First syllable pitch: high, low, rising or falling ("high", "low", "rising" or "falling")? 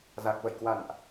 low